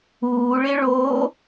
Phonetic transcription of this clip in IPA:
uː ɭ ɪ ɭ o

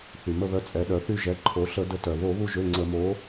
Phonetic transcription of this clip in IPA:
θ y˩ m ə˦˨ β œ˨˥ t͡sʼ ɛ˩˧ ɗ œ˩˧ θ y˦˨ ʒ ɛ˩˧˩ ǃʰ o˩˧ ɬ ə˧˩˧ d ə˨˥ t œ˩ β o˧˩˧ β u˦˨ ʒ ø˩˧˩ ŋ͡ǀ ə˧˩˧ m o˨˥

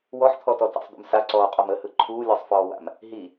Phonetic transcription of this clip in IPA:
w ɔ ħ t̪ʰ ɔ t ɔ t a̰ sˤ d̪ ṵ m s a ǀ ɔː qʼ ɔ m ə h ɯ ǃʰ uː lʲ ɔ sˤ f ɔː w a̰ m | ɦ i

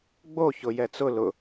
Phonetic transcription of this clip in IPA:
ɡ͡b o ç ʊ j ɛ t͡s ʊ l ʊ

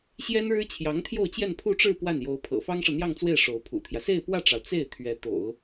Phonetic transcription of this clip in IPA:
ɕ j ɛ˥ n ɻ ɻ̩˥ t͡ɕʰ j ɑ˧˥ ŋ t̪ʰ j o˥˧ ʊ̯ t͡ɕ j ɛ˥˧ n pʰ u˥˧ ʈ͡ʂ ɻ̩˥˧ p w a˥˩ n j o˧˥ ʊ̯ pʰ ɤ̰˨˩ f ɑ˥ ŋ ʂ ɤ˨ n̪ j ɑ˥˧ ŋ t͡s w e˥˩ ɪ̯ ʂ o˧˥ ʊ̯ pʰ ṵ˨˩ t̪ʰ j ä˦ s e˥˧ ɪ̯ p w ä˥˩ ʈ͡ʂ ɑ˩ ʊ̯ t͡s e˥˩ ɪ̯ t̪ʰ ɥ ɛ˧˥ t̪ o̰˨˩˦ ʊ̯

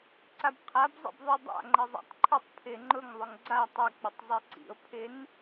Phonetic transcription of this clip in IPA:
ǀ a b qʰ a b zˤ ḭ b ðˤ i dˤ a̰ ŋ͡ǃ ə zˤ a̰ tˤ ǃʰ ʊ tˤ pʰ ɪ ŋ͡ǃ ʊ ŋ ðˤ ʊ ŋ ɡ͡ǀ a tˤ ɪ k͡p ə tˤ zˤ i ǀ ḭ o̯ pʰ ɪ n

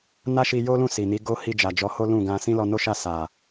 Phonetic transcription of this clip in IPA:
n a˦ ʃ i˧ j o˦ l ũ˦˨ s i˨ n i˨˦ ɡ o˦ h i˧ d͡ʒ a˨ d͡ʒ ɔ˨˦ h o˦ l ũ˦˨ ɡ ã˧ s ĩ˦ l ɔ˧ n o˦ ʃ a˦˨ s a˨

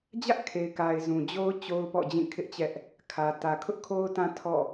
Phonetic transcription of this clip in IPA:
d͡ʑ ä˦ ʔ kʰ e˨ ɪ̯ k a˨ ɪ̯ z ũ˨ d͡ʑ o˦ ʊ̯ t͡ɕ o˦ ʊ̯ p ɔ̰˦˨ d͡ʑ ĩ˦˨ kʰ ɪ˦ ʔ t͡ɕ ɛ˦ ʔ | kʰ ä˨ t ä˨ kʰ ʊ˦ ʔ kʰ o˦ ʊ̯ t ã˦ tʰ ɔ̰˦˨

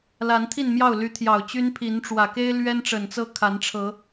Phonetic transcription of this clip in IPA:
l a˨˦ n t̪ʰ i˥˨ n m j ɑ˥˨ ʊ̯ l y˨˦ t̪ʰ j ɑ˨˩ ʊ̯ t͡ɕ y˦ n pʰ i˨˦ n ʈ͡ʂ w ä˨˩ k e˦ ɪ̯ l ɥ ɛ˦ n ʈ͡ʂ ə˨˩ n t͡s ɤ˦ kʰ a˨˦ n ʈ͡ʂʰ ɤ˨˦

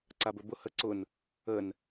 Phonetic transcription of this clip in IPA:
ǀ a b ɵ b ʊ h ə ǀ ʊ n | ə n

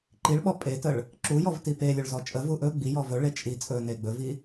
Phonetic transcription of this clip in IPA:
ǃ i ɭ ɓ ɔ pʼ e t ə ɭ | ǁ u j ɔ v t i p e lʲ ɵ ɭ z ɔ t͡ʃʼ ə v u ʔ ɵ ɡ͡b i j ɔ v ɵ ɭ e t͡ʃʼ i t͡sʼ ɵ n e ɡ͡b ɵ v i

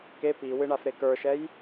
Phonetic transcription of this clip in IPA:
k e p i w ɨ ɳ a f ɾ e k ə˞ ʃ ɛ j

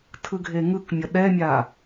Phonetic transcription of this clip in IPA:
tʰ ɯ ɡʱ e ŋ ɯ k mʲ ʌ ɗ ɛ mʲ a

